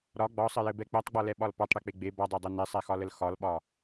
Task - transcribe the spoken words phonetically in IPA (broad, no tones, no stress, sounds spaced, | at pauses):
ɾ ɒ ɡ͡b ɒ sˤ ɘ j ɘ b ɛ k͡p ɛ tˤ ɡ͡b ɒ l ɛ ɓ ɒ l p ɒ tˤ ɽ e k͡p e ɡ͡b e b ɒ dˤ e dˤ ɘ n e sˤ ɛ x ɒ l ə l x ɒ l ɓ ɒ